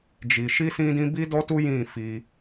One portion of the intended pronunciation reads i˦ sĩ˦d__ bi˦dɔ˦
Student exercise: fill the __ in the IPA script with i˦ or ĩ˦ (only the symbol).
ĩ˦